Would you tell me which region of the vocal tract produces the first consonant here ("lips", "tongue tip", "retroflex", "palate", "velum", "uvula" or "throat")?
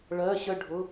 retroflex